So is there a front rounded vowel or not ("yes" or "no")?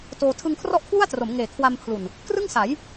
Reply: no